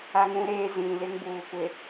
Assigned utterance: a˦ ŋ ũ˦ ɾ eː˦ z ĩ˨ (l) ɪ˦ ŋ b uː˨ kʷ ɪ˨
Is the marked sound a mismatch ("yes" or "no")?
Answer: no